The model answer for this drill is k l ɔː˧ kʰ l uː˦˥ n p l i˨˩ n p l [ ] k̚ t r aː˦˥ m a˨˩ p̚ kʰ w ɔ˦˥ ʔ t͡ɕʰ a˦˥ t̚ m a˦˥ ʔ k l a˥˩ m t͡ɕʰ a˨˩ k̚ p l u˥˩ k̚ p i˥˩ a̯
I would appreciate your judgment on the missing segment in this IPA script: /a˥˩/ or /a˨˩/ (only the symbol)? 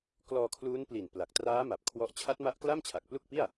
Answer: a˨˩